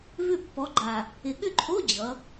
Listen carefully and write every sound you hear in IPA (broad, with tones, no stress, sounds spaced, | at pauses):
v ʏ˥˨ pː ɔ˨˥ ɡ͡ǃ a˨˩ | ɪ˨˩ ɠ ʏ˥˨ ǃʰ o˧˥˧ d͡ʑ ʌ˩˧